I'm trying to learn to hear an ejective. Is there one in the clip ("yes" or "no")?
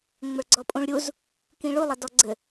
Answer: yes